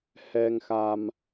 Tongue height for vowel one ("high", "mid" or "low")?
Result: mid